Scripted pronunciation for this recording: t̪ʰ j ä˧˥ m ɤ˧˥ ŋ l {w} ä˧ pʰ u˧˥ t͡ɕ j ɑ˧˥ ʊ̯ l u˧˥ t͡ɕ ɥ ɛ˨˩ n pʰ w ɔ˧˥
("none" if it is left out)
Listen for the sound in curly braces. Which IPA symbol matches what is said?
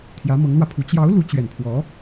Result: w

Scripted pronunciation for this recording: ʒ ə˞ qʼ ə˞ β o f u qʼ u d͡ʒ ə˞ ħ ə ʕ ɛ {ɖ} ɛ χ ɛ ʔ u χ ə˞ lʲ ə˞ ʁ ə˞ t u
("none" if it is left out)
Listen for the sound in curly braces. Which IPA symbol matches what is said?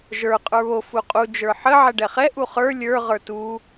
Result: ɖ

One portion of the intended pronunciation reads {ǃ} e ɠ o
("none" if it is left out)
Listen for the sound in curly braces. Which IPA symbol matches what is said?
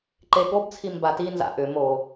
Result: ǃ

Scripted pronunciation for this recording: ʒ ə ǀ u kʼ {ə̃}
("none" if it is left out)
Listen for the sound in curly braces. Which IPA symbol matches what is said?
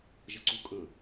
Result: ə̃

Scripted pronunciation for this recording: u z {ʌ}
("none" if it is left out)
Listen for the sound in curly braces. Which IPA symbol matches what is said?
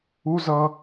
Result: ʌ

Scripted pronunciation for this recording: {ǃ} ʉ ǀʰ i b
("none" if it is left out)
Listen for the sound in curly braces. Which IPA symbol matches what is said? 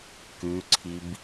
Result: k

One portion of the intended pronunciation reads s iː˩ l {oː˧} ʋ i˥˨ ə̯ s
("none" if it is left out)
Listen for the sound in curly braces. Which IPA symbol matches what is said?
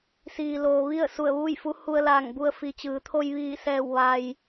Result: oː˩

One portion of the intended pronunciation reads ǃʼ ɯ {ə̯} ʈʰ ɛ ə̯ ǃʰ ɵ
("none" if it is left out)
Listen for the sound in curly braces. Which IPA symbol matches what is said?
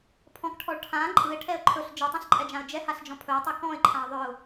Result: ɪ̯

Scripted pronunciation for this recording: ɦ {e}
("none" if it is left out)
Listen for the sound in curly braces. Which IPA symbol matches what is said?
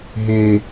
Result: e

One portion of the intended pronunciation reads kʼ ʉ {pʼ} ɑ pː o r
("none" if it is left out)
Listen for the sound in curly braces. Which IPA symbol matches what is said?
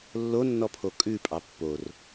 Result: pʼ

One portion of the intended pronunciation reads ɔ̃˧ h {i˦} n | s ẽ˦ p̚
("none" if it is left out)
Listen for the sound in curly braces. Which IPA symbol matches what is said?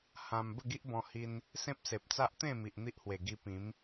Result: i˧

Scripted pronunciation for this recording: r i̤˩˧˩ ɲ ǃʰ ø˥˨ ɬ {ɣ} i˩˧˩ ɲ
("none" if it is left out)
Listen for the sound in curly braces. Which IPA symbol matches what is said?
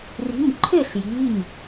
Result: j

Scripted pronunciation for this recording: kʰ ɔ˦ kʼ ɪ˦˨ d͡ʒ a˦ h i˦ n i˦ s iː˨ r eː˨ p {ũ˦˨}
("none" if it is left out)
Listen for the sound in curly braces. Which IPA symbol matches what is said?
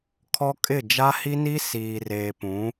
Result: ũ˨˦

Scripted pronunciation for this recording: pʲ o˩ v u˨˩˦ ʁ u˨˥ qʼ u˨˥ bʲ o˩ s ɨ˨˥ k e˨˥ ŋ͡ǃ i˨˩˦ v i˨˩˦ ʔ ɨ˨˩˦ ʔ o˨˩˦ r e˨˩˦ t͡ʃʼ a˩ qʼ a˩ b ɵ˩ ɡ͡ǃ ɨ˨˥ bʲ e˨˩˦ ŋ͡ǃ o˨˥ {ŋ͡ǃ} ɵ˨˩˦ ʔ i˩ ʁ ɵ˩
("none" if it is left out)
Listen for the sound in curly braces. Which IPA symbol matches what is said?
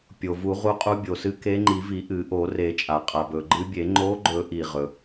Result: ɡ͡ǃ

